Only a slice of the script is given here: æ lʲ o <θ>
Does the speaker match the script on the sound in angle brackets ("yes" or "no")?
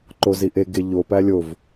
no